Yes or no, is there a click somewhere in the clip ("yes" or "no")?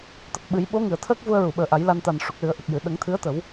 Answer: no